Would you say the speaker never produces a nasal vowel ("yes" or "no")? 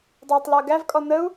yes